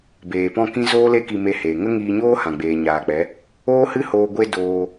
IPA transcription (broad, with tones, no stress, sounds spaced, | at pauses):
b eː˨ p ɔ̃˦˨ k ĩ˦ z oː˦ l e˦ k i˧ m e˧ h eː˨ ŋ ə˦ ŋ iː˧ ɲ oː˦ h ã˨ ɡ͡b eː˨ ɲ aː˨ k͡p ɛ˨˦ | oː˦ h ɨ˦ h oː˧ ɡʷ e˧ d oː˧